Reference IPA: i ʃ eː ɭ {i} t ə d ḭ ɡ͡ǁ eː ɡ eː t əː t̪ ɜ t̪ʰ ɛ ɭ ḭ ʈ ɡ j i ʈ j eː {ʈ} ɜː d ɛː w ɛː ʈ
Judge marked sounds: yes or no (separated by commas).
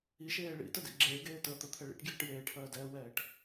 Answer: no, no